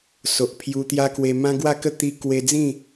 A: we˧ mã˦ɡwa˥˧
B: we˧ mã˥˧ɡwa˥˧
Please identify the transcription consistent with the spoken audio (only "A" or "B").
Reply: A